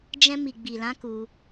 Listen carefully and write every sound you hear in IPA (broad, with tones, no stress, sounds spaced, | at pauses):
d͡ʒ ɛ̃˧ m i˨ ɡ͡b i˨ l ã˨˦ k u˧